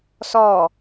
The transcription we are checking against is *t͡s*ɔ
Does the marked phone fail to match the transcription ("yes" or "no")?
yes